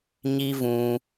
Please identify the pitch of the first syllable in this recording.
high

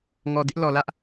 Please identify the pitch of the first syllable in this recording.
low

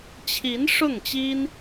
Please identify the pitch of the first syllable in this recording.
rising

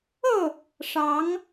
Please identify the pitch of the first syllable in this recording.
falling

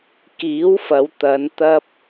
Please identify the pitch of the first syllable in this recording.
rising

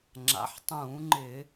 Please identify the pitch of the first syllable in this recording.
rising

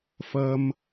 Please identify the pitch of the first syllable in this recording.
high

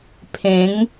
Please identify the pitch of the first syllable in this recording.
rising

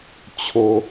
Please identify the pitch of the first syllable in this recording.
low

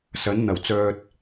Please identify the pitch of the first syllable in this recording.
rising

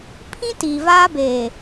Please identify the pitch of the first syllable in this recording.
high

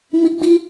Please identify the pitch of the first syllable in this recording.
high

